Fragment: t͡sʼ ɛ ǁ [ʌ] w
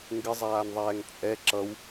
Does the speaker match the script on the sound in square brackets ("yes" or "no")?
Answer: yes